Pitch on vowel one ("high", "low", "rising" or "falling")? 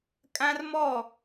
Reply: high